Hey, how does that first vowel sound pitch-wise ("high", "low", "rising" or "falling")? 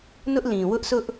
high